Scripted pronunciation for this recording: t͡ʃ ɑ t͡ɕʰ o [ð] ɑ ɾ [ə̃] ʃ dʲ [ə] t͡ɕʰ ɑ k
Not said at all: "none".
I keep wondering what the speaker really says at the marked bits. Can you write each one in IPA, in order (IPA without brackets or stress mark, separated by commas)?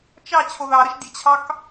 ð, ə, ə